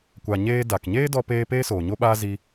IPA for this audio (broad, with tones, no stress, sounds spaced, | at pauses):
kʷ a˨ ɲ eː˧ d a˨ k ɲ eː˦ d ɔ˧ p eː˧ p eː˦ s oː˨ ɲ o˦ ɓ aː˦ z i˦